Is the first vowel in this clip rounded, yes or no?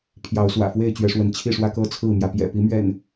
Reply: no